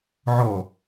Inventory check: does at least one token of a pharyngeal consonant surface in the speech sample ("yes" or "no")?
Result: yes